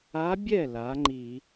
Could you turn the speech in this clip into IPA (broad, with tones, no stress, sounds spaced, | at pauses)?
a˧˥ bʲ ɛ˥˩ l a˩˥ ŋ͡ǃ i˧˩˧